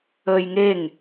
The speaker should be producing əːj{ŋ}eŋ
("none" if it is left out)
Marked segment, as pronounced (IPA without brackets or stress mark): ŋ